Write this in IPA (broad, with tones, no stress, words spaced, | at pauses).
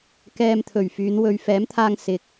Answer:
kɛː˧mt̪ʰɵ˨˩ɥfyː˨˧n wɵ˨˧ɥfɛː˨˥mt̪ʰaː˧ŋ sɪ˨k̚